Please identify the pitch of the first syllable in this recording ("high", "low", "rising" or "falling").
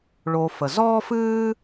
low